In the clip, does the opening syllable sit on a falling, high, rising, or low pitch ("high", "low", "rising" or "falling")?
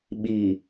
low